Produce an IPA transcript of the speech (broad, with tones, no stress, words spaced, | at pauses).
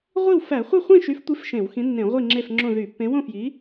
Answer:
ʁʷi˥˨wfæ˧˩˧ χʷɯ˥˨χʷĩ˥˨ʃy˨˥ftʷi˨˥f ʃẽ˧˩˧wxĩ˨˥nːẽ˧˩˧ʁʷi˥˨ ŋ͡ǁe˥˨fŋ͡ǁõ˥˨ ðy˧˩˧pːẽ˨˥ wõ˥˨fji˨˥